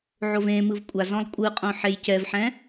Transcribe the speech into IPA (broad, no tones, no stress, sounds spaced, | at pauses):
ʕ o v ẽ m ɯ v kʷʼ a z ɔ̃ lˠ kʷʼ ɯ qʼ õ ħ e j c ɛ v ħ ɛ̃